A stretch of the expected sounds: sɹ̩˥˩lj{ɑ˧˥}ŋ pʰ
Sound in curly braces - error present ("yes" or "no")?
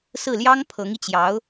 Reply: yes